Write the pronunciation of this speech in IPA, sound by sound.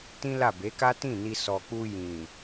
t ĩ˦ l a˦˨ b e˨˦ k a˦ t ĩ˦˨ n i˧ s ɔ˨ k͡p u˧ j ĩ˨

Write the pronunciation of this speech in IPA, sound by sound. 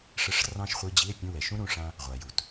ʂ ə˧˥˧ ʂ r ɑ̃˥ ʃ χʷ i˧˥˧ d͡ʑ i˧˥˧ e̯ pʲ ũ˧˥˧ w ɛ˩ ʃ ũ˥ ɾ ũ˩˧˩ ʂ ã˥ | ʁʷ a˩ j u˩ t

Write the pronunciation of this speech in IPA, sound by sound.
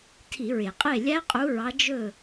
tʰ i˧˩˧ ɹ e˩ qʼ e˥˨ lʲ æ˦˥ qʼ u˨˦ ɹ ɑ˨˦ d͡ʒ ɵ˧˩

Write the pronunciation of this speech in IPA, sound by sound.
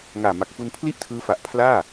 ŋ aː˨˩ m a˨˩ k̚ f u˧ n pʰ l i˥˩ ʔ tʰ ɯː˦˥ f a˨˩ ʔ pʰ l aː˥˩

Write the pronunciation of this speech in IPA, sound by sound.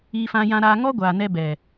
i˧ f ã˧ j ã˧ ɾ aː˧ ŋ ɔ˦ ɡʷ aː˨ n ɛ˧ b ɛ˨

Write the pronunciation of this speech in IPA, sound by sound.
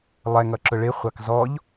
lˠ ɛ ŋ ʌ ǁ ʊ ɭ ɪ χʷ ɑ k z ɔ ʎ

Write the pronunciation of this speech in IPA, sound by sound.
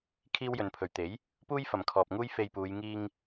kʰ iː˥ w j ɵ˨˧ n pʰ ɵ˨ ɥ t̪ e˨˥ j | p uː˥ j f ɐ˨ m kʰ ɔː˨ p̚ ŋ uː˥ j f e˧ j p uː˨˧ j ŋ iː˧ ŋ

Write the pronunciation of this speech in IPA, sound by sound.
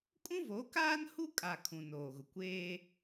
kʼ ũ˦ v o˨˦ k aː˦ n h u˦ kʼ a˨ kʰ ũ˨ n oː˨ ɣ ʊ˨ kʷ eː˦

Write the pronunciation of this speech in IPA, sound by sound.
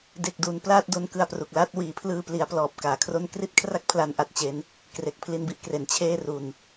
d e˨˩ k̚ d uː˩˦ n p l a˥˩ t̚ d o˧ n k ɯ˧ a̯ p r u˨˩ k̚ l a˥˩ t̚ w iː˩˦ pʰ l ɯː˧ p l i˩˦ a̯ p l ɔː˨˩ p̚ k aː˨˩ kʰ r o˥˩ n k r i˥˩ t̚ kʰ r a˥˩ k̚ pʰ l a˧ n ʔ a˥˩ t̚ t͡ɕ e˦˥ n | k r e˨˩ k̚ pʰ l i˧ n b i˥˩ ʔ k r e˩˦ n t͡ɕʰ eː˥˩ r u˧ n

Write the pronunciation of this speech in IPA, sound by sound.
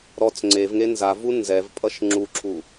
ɾ ɔ t͡s ŋ͡ǀ e v ŋ e n z a v u n z ɛ v pʼ ʌ ʃ ŋ͡ǁ u ǁʰ u

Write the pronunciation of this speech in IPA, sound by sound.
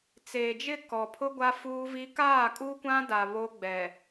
t͡s eː˨ d͡ʒ ɪ˦˨ k ɔ˨ pʰ ʊ˦ ɡʷ a˦ f uː˦ v i˦ k aː˦˨ kʼ u˦ kʷ ã˦ d a˨ β o˦ ɡ͡b ɛ˨

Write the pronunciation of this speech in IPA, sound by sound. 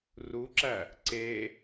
r u ǁ æ | ǀ e

